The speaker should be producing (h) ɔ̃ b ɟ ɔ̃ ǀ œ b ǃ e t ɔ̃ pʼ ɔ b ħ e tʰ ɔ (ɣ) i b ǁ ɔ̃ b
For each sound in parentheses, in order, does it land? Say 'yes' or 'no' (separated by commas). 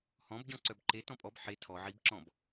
yes, no